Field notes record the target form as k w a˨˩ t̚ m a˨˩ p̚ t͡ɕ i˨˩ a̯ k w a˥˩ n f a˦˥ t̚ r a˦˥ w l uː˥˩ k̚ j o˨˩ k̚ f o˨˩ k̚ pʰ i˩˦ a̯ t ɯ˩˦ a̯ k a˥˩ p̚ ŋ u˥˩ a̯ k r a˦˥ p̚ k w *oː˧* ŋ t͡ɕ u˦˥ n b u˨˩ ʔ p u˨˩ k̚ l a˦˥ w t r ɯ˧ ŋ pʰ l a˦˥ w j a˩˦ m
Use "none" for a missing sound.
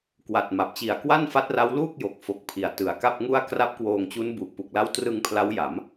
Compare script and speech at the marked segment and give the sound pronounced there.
oː˧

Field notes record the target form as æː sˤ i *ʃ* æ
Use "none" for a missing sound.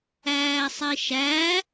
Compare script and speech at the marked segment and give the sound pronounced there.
ʃ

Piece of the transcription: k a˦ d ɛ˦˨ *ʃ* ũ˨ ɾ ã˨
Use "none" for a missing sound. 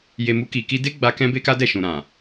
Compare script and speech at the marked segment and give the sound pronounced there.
ʃ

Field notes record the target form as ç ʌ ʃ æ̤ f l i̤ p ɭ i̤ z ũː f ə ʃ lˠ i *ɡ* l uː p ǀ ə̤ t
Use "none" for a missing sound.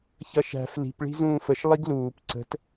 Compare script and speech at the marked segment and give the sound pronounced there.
ɡ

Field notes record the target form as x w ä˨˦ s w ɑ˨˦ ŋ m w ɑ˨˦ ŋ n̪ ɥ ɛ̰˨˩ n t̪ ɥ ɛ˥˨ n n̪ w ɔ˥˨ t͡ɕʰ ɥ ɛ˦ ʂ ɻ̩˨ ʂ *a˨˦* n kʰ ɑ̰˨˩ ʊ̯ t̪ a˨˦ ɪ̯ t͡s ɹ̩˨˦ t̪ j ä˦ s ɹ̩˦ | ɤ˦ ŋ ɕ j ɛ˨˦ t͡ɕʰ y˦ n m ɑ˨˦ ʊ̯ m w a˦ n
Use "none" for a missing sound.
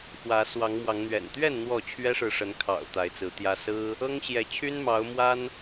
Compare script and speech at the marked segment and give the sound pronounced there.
ə˨˦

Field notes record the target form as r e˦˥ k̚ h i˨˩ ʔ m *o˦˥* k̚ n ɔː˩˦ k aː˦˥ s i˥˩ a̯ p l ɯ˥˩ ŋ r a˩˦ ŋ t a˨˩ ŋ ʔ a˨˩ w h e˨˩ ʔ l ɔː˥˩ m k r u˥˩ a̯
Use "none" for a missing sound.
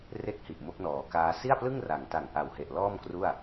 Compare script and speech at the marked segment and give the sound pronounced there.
o˦˥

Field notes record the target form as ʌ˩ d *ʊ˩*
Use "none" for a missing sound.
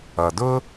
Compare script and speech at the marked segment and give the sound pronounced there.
ʊ˥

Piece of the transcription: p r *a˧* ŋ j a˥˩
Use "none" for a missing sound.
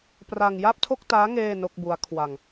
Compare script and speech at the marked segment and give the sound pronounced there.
a˧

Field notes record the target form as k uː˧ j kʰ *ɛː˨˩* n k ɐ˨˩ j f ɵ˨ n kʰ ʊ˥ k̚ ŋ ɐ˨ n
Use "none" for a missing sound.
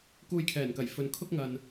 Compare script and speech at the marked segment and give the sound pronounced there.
ɛː˨˩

